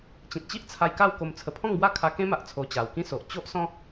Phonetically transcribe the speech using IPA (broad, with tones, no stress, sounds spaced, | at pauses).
t͡ɕ ĩ˨ t̚ t͡ɕ i˦ ʔ t͡sʰ a˧ j k a˥˧ w k o˧ m t͡sʰ ə˧ pʰ ɔ̃˥˧ ŋ b w a˦ kʰ a˧ k ẽ˦ m a˨ ʔ t͡sʰ o˧ t͡ɕ a˨˩ w k ĩ˦ s o˨ ʔ t͡ɕ o˦ ʔ s ɔ̃˦